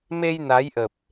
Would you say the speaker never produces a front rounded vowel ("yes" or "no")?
yes